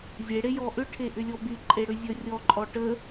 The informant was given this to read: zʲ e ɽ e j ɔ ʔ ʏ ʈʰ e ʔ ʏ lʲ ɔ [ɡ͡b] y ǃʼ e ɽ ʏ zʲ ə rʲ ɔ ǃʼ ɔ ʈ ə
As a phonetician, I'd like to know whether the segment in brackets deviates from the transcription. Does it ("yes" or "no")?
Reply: yes